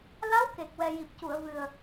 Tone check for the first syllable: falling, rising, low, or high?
rising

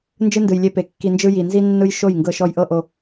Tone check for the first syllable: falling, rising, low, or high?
high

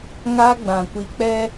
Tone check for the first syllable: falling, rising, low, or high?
high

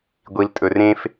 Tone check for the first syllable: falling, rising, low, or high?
low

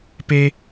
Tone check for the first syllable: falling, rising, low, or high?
high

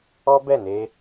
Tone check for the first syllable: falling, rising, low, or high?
high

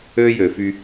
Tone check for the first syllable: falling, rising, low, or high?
high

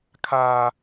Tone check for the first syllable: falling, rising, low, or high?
high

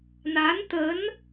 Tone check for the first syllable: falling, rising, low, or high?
rising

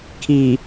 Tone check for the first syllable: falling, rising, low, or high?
low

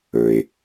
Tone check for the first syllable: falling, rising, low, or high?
low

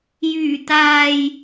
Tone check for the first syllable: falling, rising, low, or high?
low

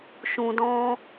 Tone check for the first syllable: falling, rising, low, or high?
low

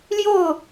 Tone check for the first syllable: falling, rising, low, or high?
falling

